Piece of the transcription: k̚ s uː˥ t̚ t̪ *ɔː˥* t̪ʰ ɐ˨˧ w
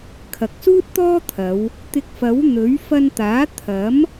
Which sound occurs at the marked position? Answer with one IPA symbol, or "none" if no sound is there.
ɔː˥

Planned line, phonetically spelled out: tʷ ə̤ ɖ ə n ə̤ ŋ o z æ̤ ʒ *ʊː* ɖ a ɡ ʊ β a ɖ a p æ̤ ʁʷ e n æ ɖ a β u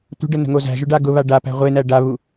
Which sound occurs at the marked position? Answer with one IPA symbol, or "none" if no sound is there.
ʊ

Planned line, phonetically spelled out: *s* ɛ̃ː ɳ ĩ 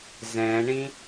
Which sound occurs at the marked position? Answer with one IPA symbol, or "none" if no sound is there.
z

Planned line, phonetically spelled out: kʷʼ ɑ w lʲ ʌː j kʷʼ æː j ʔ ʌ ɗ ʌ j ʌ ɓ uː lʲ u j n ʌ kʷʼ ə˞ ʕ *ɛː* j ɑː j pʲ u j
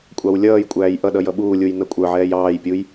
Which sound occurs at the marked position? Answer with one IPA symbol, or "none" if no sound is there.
ɛː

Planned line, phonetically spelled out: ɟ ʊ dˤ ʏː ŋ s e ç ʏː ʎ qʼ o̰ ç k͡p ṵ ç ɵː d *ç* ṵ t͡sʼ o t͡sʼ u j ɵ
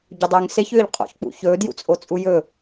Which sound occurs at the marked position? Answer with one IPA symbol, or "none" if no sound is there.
j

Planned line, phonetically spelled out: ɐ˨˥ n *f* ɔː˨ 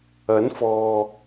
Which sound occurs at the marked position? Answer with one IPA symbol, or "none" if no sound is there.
f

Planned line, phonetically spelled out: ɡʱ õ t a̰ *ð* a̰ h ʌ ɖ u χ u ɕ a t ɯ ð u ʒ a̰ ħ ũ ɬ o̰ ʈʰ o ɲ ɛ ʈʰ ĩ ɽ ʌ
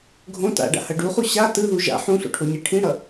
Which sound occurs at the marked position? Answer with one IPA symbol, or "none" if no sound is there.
ɖ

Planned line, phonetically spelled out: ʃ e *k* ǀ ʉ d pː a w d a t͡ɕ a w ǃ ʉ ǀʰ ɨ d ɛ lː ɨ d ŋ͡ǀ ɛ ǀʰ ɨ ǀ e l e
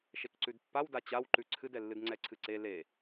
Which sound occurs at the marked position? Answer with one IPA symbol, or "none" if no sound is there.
k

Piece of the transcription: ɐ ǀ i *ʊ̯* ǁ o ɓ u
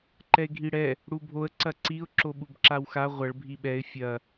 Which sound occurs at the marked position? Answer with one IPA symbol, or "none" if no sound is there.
ʊ̯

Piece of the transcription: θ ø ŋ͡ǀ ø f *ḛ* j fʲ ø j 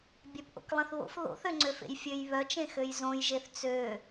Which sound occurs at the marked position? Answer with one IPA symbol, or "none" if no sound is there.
ḛ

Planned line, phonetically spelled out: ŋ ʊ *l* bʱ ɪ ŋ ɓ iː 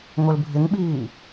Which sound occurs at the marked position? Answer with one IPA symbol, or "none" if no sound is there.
l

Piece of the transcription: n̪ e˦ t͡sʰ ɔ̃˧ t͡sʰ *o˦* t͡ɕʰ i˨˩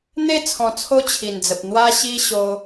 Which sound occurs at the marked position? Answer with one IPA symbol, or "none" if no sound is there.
o˦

